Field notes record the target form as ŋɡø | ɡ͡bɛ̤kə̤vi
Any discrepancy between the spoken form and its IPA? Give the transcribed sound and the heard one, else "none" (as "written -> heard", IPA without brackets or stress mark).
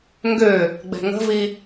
k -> ŋ